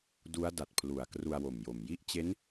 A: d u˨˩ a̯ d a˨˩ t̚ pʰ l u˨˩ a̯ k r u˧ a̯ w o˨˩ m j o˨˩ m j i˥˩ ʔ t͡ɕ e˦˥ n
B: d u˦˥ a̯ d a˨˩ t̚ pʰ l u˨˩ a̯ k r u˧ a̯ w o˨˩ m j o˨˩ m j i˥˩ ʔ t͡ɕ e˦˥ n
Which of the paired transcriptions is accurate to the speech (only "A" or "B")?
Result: B